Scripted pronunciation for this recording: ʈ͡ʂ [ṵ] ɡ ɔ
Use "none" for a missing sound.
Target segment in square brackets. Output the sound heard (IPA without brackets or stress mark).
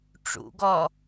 ṵ